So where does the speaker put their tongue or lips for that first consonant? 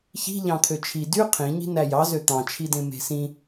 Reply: palate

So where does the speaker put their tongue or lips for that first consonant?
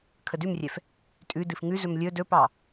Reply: velum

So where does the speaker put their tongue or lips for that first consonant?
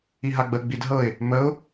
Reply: throat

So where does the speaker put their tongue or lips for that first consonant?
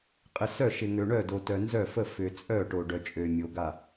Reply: uvula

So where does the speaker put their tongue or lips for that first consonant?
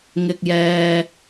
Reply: velum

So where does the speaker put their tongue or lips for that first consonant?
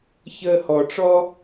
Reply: palate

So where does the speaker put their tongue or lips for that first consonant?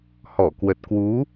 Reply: throat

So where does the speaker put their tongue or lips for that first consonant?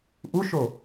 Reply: throat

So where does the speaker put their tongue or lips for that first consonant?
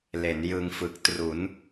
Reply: tongue tip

